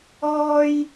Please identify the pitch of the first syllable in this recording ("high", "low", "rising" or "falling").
high